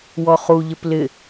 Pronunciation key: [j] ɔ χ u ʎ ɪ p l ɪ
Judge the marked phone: incorrect: w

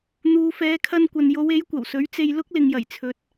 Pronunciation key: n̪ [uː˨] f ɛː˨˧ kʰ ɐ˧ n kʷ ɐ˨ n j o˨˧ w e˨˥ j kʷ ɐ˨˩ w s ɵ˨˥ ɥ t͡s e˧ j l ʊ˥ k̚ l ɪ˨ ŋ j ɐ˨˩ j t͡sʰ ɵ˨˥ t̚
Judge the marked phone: correct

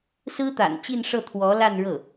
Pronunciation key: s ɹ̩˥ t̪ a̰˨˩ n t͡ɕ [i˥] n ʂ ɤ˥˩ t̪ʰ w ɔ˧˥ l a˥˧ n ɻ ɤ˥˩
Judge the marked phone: incorrect: i˥˧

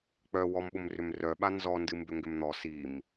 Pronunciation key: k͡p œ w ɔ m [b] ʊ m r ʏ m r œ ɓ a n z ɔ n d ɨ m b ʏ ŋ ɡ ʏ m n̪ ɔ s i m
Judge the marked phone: incorrect: ɓ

